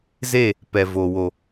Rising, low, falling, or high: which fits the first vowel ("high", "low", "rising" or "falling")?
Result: falling